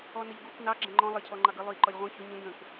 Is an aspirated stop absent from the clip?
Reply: no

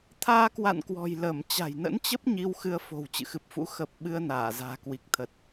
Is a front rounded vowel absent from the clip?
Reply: yes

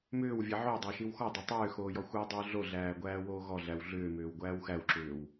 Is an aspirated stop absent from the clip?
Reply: yes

